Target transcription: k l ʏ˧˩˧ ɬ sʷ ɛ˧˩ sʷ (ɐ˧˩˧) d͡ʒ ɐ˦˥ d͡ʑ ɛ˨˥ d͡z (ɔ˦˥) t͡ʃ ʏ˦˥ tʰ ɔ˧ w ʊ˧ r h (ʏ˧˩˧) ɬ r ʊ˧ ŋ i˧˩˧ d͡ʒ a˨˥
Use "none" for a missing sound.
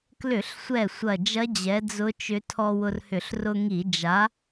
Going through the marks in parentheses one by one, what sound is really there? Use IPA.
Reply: ɐ˧˩, ʊ˦˥, ʏ˧˩˧

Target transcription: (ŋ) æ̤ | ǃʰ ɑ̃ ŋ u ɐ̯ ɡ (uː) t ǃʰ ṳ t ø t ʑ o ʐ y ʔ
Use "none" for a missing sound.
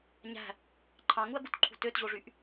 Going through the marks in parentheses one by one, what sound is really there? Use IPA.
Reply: ɲ, u

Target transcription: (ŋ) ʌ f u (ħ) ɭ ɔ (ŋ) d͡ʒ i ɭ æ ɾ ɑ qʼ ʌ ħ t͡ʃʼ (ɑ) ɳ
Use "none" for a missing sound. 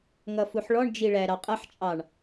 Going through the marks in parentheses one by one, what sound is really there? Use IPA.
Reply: ŋ, ħ, ɳ, ɑ

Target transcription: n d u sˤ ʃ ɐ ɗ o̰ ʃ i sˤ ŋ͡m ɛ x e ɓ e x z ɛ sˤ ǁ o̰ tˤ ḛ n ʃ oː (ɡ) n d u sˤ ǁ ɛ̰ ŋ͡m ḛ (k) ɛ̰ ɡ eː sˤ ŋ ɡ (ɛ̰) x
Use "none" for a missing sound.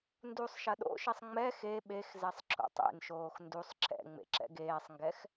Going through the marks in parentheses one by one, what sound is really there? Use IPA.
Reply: x, ǁ, ɛ

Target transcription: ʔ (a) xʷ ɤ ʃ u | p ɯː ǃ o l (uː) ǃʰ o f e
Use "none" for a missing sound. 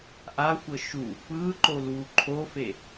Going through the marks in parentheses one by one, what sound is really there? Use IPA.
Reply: a, uː

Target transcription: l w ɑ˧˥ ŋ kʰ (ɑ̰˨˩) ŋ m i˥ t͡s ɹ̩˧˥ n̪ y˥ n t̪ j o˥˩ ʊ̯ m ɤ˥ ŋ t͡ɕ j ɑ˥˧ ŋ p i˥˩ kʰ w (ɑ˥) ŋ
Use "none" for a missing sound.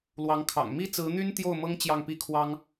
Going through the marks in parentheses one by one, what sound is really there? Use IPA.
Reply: ɑ̰˨˩, ɑ˥

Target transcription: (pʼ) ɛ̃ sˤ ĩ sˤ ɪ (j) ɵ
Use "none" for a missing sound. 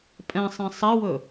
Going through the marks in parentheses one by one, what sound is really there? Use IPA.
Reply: pʼ, w

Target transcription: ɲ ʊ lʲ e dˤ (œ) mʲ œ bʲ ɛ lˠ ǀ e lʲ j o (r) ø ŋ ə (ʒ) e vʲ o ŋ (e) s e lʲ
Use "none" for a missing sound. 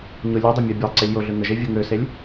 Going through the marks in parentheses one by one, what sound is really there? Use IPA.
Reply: ø, ɮ, ʒ, ø

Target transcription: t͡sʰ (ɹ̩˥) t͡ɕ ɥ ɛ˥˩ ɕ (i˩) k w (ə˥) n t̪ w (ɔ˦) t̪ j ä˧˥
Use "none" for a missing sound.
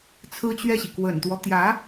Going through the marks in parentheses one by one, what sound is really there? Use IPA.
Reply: ɹ̩˥, i˩, ə̰˨˩, ɔ˦

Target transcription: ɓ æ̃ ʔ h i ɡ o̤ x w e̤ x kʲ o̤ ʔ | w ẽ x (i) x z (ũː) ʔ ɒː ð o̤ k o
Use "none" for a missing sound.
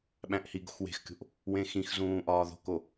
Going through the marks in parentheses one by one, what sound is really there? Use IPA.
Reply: ĩ, ũː

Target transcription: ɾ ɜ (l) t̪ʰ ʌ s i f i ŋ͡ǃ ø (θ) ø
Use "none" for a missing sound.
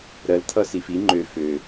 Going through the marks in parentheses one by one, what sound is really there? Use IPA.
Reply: l, f

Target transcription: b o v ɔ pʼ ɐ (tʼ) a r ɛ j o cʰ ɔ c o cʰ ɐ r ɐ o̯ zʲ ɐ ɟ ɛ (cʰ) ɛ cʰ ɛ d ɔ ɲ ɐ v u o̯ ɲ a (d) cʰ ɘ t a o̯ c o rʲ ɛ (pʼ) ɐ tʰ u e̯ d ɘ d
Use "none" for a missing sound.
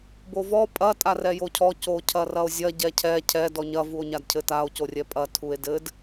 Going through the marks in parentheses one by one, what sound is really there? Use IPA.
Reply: tʼ, cʰ, d, pʼ

